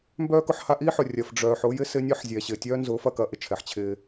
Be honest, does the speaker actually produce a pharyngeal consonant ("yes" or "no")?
yes